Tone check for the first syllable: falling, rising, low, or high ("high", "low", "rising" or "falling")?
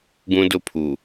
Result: high